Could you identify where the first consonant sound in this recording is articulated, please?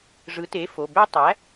retroflex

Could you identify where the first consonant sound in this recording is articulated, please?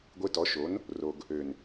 velar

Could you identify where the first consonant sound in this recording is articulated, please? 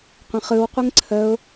uvular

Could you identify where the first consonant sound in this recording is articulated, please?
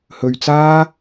glottal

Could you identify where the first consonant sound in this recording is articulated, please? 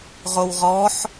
uvular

